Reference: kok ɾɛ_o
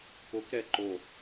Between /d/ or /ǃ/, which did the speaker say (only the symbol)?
ǃ